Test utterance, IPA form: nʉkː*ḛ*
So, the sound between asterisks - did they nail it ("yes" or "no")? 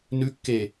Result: no